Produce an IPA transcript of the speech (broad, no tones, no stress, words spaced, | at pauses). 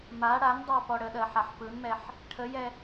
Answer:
ma ɽandˤɑ pɔɽəɗɜ ħaħpɯnmɛħ | ʈʰəjɛ